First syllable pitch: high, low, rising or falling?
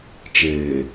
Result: low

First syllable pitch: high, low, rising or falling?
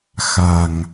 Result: low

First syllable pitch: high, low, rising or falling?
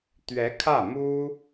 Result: rising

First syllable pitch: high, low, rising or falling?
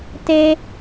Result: high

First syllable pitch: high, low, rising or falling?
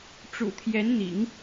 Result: low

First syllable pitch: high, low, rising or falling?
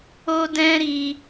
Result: high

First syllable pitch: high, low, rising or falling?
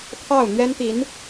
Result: falling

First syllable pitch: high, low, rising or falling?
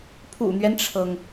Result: low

